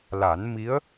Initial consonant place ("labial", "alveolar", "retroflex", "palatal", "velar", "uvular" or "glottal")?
alveolar